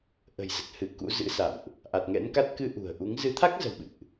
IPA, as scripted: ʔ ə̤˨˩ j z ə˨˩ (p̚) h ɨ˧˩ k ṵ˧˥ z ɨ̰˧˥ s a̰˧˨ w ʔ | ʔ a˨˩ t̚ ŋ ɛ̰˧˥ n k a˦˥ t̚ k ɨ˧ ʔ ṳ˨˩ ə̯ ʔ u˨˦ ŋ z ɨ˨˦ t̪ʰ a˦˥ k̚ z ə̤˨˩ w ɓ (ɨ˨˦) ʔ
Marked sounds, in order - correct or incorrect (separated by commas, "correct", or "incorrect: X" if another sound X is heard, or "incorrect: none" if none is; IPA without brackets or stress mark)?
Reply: incorrect: t̚, incorrect: ɨ̰˧˨